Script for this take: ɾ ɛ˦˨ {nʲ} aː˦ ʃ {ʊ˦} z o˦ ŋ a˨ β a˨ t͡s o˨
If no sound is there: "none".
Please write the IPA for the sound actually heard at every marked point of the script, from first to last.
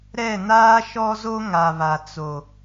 n, ɔ˦

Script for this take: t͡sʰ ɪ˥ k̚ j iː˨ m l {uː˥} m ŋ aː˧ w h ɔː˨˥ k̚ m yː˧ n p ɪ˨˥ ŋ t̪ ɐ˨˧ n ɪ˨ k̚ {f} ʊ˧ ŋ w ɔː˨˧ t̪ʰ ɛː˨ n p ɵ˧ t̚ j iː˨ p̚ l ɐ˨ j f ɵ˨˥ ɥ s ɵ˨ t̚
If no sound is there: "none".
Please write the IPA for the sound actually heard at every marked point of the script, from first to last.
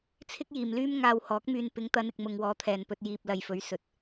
yː˥, m

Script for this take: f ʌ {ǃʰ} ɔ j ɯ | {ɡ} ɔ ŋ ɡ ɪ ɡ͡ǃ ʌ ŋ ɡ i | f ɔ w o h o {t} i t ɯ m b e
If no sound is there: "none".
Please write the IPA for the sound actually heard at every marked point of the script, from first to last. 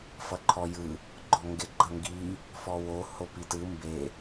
ǃʰ, ɡ͡ǃ, p

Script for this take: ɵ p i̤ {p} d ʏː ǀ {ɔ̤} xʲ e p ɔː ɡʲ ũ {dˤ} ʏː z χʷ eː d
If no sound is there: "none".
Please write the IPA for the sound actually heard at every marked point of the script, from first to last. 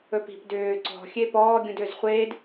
p, ɔ̤, d

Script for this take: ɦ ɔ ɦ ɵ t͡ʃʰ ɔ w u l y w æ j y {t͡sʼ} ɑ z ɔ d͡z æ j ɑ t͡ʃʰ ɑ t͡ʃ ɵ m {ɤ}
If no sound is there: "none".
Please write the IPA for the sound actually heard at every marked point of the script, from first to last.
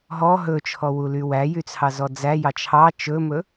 t͡sʰ, ɵ

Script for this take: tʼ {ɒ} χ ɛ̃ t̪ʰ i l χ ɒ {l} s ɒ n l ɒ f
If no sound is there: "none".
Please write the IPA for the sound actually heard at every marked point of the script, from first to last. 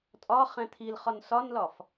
ɒ, n

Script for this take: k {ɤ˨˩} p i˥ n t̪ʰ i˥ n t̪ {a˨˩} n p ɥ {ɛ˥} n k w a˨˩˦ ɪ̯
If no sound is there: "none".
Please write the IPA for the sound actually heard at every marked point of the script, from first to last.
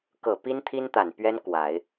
ɤ˨˩, a˨˩, ɛ˥

